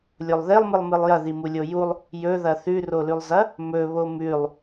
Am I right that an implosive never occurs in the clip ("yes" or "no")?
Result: yes